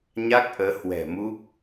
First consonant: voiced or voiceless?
voiced